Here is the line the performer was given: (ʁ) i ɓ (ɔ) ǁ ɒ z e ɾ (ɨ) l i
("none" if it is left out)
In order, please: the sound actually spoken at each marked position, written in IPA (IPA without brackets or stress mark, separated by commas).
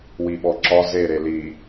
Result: w, ɔ, e